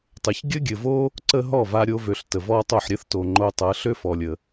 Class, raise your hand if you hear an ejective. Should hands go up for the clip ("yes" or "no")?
no